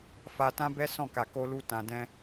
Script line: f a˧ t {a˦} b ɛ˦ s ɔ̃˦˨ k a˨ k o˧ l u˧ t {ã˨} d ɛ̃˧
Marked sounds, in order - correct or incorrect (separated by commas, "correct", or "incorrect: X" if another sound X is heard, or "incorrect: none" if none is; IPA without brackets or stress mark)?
incorrect: ã˦, correct